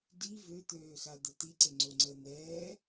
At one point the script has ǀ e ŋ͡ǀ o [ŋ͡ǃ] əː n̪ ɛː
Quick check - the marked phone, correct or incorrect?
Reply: incorrect